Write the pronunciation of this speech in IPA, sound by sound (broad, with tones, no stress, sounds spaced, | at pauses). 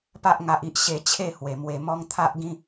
p a˦ ʔ ŋ a˦ ʔ i˦ ʔ ɕ e˧ t͡ɕʰ e˥˧ h w e˨˩ m w e˧ m ɔ˦ ŋ t̪ʰ a˦ ʔ ɡ ĩ˦